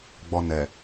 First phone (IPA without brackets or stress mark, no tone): ɡ͡b